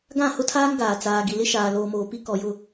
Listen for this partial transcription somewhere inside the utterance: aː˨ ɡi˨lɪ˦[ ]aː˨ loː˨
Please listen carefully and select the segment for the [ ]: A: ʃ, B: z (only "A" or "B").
A